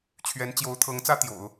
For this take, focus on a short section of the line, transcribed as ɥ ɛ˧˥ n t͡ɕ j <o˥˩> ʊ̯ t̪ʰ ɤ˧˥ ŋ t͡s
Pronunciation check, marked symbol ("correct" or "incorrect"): incorrect